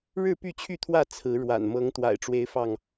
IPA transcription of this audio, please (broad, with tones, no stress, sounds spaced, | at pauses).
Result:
ɻ ɻ̩˥˨ p y˥˨ t͡ɕʰ y˥˨ t̪ʰ w ä˥˨ t͡sʰ ɹ̩˨˦ ɻ w a̰˨˩ n m ɤ˨˦ ŋ t̪ w a̰˨˩ ɪ̯ ʈ͡ʂ w e˦ ɪ̯ f ɑ˥˨ ŋ